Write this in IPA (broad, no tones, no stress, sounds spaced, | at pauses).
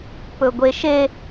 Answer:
p ɵ ɡʷ e ʃ e